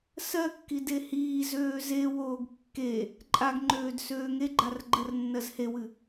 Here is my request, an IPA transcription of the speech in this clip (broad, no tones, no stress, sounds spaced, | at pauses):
s ɜ kː i d e h iː z øː z e w oː ɡ kː e | ǃʼ a ɡ ŋ͡ǃ øː d s øː ŋ e ɡ͡ǃ a r ɡ͡ǃ ɜ r nː ɜ z h e w ɨ